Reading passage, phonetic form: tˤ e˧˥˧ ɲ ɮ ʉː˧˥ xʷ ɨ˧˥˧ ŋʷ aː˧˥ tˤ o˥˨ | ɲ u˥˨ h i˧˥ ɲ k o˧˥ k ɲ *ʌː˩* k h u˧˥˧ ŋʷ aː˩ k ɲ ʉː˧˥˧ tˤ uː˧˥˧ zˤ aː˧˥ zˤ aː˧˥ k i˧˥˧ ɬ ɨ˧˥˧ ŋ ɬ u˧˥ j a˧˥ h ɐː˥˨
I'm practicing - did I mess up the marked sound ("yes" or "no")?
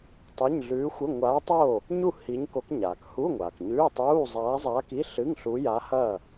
yes